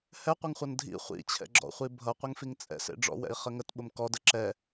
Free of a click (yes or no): no